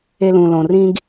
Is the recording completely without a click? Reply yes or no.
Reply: yes